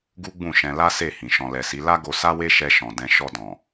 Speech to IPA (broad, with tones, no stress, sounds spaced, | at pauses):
ɡ u˦ ɡ͡b ũ˦˨ ʃ ɛ̃˧ l a˦ s e˦˨ h ĩ˨ ʃ ɔ̃˧ l ɛ˨ s i˨˦ l a˦ ɡ o˧ s a˦ w e˦ ʃ ɛ˧ ʃ ɔ̃˨ d ɛ̃˧ ʃ ɔ˧ d ɔ̃˨